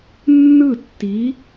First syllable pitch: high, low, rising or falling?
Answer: falling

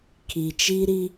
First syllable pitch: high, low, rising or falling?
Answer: low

